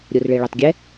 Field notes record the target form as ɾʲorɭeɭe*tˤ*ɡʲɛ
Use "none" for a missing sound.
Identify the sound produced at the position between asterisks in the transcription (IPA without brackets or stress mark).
tˤ